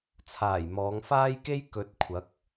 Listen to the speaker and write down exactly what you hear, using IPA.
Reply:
t͡sʰ aː˨˩ j m ɔː˨˧ ŋ f aː˥ j k e˥ j k ɵ˨˥ t̚ kʷʰ ɐ˨˥ k̚

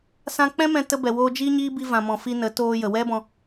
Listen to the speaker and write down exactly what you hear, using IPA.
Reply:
s ã˧ k͡p ɛ̃˦ m ɛ̃˧ t ə˧ b ɛ˨ w oː˧ d͡ʒ iː˦ ɲ iː˦ b i˧ v ã˨ m ɔ̃˨ f i˧ n ə˨˦ t oː˧ j ə˨ w ɛ˦ b ɔ̃˧

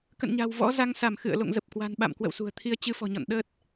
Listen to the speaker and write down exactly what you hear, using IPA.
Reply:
k ə̰˧˨ n ɲ a̤˨˩ w v ɔ̰˧˥ z a˨˦ ŋ s a˧˩ m x ɨ̰˧˨ ə̯ l o̰˧˨ ŋ z ə˨˩ p̚ k w a̤˨˩ n ɓ a̰˧˨ m k w ə̰˧˨ w s ṳ˨˩ ə̯ t̪ʰ i˧ ə̯ t͡ɕ ɨ˧ f ɔ̤˨˩ ɲ ɔ̰˧˨ n ɗ ə˦˥ t̚

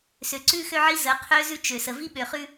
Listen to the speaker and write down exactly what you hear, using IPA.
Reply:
s ø˨ ǀ ʉ˦ x ø˦ ʕ i˦ z ə˨˦ qʰ ø˦ z ʉ˦ t͡ʃ ø˨ s ə˨ v i˦ ɓ ø˨ χ ʉ˦

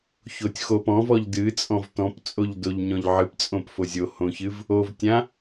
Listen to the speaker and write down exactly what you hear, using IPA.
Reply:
ç o tʲ x o p ɔ̃ v ɔ ʎ d ɨ t͡sʼ ɔ̃ v t ɔ̃ p t͡sʼ o ʎ d o ʎ ɲ ɔ̃ ʎ ʕ ɨ p t͡sʼ õ p f o zʲ o h õ ç ɨ v | o v tʲ ã

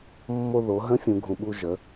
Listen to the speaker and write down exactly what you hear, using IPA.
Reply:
mː o˧ ð o˩˧ ɦ ə̃˧˥ fʲ ũ˩˧ ɡʱ ũ˩ ɓ u˧ ʒ ə˩˧

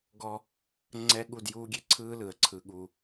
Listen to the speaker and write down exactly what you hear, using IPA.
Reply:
ɡ ɔ˦ | ŋ͡ǀ ɛ˦ ɠ u˦˨ d j uː˦ ɡʲ e˦ ǀʰ ɯː˦ l ɯ˨ ə̯ ǀʰ ɯ˦ ɠ u˦

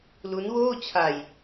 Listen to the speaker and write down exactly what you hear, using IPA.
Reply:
l u˦˥ n w oː˥˩ t͡ɕʰ a˧ j

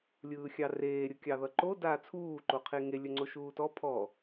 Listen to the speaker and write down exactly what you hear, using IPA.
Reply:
lʲ ɯː xʲ ɑ r eː ɾʲ ɯ kʲ ɑ ð ʌ ǃ o d aː t͡sʰ uː ǃ o qʰ e ŋ e lʲ ɵ ŋ͡ǀ o ʃ uː t ɔ pʰ ɔ

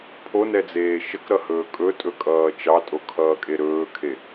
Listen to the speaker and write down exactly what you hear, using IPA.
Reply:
pʰ o n ɛ d͡z eː ʃ ə k ɾ ʌ h ɵː kʼ ɵ tʼ ɵ kʼ ʌː t͡ʃ ɑ tʼ o kʰ ʌː kʼ e ɾ ɵː kʰ e

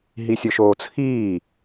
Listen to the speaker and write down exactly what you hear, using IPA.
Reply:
ɦ i sʲ ʊ ʃ oː t͡sʰ iː

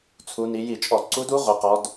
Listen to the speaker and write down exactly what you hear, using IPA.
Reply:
t͡sʰ u˩˧ n i˩˧ j i˧˩˧ t͡ʃʼ ɔ˧˩˧ ǀ u˧˥ d u˧˥ ʁʷ i˩˧ q ɔ˩˧ d

